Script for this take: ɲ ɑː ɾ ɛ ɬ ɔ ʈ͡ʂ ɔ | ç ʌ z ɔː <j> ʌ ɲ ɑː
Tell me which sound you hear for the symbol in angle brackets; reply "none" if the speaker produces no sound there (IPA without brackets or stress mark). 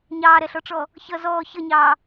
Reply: ç